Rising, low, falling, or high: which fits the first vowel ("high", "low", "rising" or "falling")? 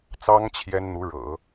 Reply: high